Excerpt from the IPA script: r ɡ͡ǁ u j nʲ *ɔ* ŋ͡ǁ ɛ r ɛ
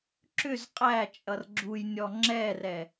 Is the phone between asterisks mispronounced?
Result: no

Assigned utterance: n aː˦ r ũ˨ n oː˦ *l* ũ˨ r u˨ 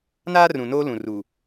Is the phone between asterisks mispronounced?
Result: no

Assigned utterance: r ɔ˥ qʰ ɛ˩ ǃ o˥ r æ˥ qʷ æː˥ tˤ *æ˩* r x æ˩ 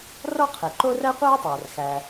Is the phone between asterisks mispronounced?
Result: no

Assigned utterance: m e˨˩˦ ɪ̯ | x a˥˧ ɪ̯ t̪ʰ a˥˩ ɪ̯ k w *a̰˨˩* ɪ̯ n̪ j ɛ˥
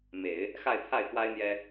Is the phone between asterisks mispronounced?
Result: yes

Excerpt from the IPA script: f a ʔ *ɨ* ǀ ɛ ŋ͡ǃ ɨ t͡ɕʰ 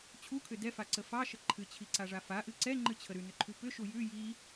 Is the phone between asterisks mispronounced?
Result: no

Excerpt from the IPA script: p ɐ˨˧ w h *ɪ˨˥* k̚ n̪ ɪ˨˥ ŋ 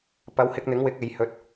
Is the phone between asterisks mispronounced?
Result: yes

